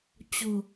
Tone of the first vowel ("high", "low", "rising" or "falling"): low